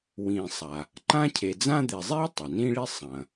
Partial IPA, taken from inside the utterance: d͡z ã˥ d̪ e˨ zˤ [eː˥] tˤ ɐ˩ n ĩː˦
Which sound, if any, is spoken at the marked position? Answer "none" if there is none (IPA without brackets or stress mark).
eː˥